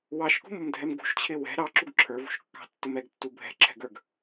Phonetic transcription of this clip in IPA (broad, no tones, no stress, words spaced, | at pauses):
wɑʃkṳmʊmdʱɛm ɡṳʃt͡ɕʰɪ wɛ̤ ɾɑǁuɡ ǁʰə˞vṳʃkːɑ̤tːʊm ɛɡtːu bʱɛ̤ǁʰɛ̤ɡə˞ɡ